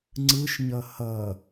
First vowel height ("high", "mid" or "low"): high